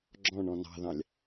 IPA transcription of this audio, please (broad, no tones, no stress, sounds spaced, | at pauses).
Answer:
ɡ͡ǁ ɔ̃ ɳ ɔ̃ n ɑ̤ ð ɑ̃ lʲ